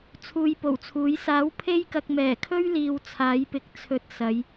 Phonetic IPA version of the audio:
t͡sʰ uː˧ j p o˨˩ w t͡sʰ uː˨˥ j s aː˨˥ w pʰ e˥ j k ɐ˧ k̚ m ɛː˨˩ kʰ ɵ˥ ɥ l iː˨ w t͡sʰ aː˨˥ j p ɪ˨˥ k̚ t͡sʰ ɵ˧ t̚ s ɐ˨˧ j

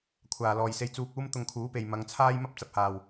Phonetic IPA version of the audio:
kʷʰ aː˨ l ɔː˨ j s e˧ j t͡s uː˧ k̚ uː˥ m t̪ ʊ˧ ŋ kʰ uː˨˥ p e˨ j m ɐ˨˧ ŋ t͡sʰ aː˥ j m ɐ˥ p̚ t͡s ɐ˧ p̚ h aː˨˩ w

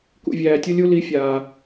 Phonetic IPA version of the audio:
k ṵ˨ vʲ æː˨ tʲ u˧ lʲ u˧ l i˨˦ fʲ aː˨

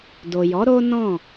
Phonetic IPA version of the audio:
d o˨ j ɔ˨˦ ɾ o˦ n ɔ̃˦˨

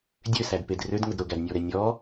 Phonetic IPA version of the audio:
dʲ ø s æ d p e d r ø d ŋ ʊ d ɾ ʊ ɡ æ d nʲ ɔ ɾ ɛ nʲ ɔ

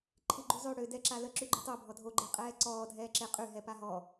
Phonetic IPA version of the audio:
ǃʰ i ɡ͡ǃ u zˤ ø ɽ ø d ɛ ǁ a l ə ǁ y ɡ͡ǃ u tˤ o bʱ ɔ dʱ o ɡ͡ǃ e qʼ ɛː ǀ ɔː dʱ ɛː ǁ e qʼ y ɦ ɛ p a ɦ ɔ

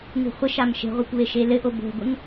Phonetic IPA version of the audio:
ŋ ṳ χʷ ɪ ʃ a m ʃ e̤ ʁʷ a kʷ β e ʃ e l ɘ ʔ o b o̤ ɡʷ ɪ ŋ

